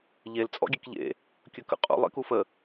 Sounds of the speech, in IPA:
ʎ e l t͡sʼ ɔ̰ ɡʲ e k ʎ ḛ | kʲ ɵ k ə̰ qʼ ṵ lˠ ḛ k u f ə

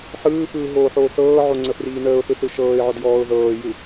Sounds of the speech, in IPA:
ħ ɯː f ɯː ɦ oː ħ oː s ɤː ʕ o ŋ͡ǀ ə f r iː n əː ʊ̯ θ ɯ s ɯ ʃ ɤː ɪ̯ ʕ ɔ d j ɔː ʊ̯ ð ɤː j ɯ

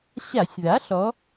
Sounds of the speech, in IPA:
ɕ a˧˩˧ sʲ ð a˩˥ ɬ ɔ˩˧

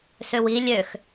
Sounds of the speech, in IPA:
s ø w i lʲ ø x

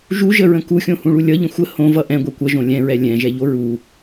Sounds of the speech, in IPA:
ʒ u ʒ ə ɹ ə̃ k u xʲ õ h ũ ɭ u lʲ ʌ ʎ ə̃ xʷ ə h õ v ʌ ʔ ɛ̃ ɡʷ ɛ kʷ ʌ ʒ õ lʲ ɛ̃ ɹ ɛ lʲ ɛ̃ ʒ ɛ ʎ o ɹ u

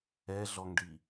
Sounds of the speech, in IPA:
ɛ ɮ ɔ ŋ ɖ i

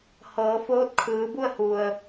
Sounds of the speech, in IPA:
h ɤː˩˧ f oː˧˥ t̚ kʰ ɯː˩˧ b u˥˨ ə̯ h u˩ ə̯

